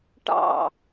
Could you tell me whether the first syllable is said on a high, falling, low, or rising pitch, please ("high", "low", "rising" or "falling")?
falling